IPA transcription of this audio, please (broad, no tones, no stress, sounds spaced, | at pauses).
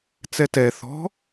t͡s ɛ t ɛ θ ɔ̤